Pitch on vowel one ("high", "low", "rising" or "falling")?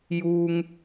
low